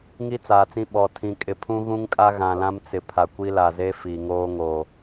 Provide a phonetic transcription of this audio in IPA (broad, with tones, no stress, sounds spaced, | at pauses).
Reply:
ŋ i˦ t͡s aː˨ t͡s ĩ˦ ɓ ɔ˨ tʰ ĩ˨ kʼ ɪ˨ pʰ ũ˦ ɣ ũ˦ ŋ kʼ a˦ ɣ ã˨ l ã˦ m t͡s ɪ˨ pʰ a˨ kʷ i˦ l a˨ z e˦ f i˨ ŋ oː˦ ŋ o˨